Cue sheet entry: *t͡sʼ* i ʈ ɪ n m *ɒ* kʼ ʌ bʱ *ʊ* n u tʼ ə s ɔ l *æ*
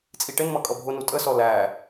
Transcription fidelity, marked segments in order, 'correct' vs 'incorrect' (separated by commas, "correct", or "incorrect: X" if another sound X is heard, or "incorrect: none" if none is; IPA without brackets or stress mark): correct, incorrect: ʌ, correct, correct